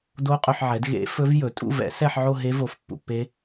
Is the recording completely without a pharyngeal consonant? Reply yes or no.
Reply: no